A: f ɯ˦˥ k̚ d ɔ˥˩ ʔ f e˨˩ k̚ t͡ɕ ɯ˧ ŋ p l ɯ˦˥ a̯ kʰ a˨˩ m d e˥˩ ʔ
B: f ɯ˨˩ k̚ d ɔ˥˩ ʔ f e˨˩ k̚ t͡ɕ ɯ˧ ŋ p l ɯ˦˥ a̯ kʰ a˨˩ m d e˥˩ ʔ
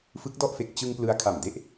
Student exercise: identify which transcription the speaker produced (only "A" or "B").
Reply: A